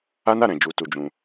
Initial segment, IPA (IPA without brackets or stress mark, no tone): a